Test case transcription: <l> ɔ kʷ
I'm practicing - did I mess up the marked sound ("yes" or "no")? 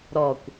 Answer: yes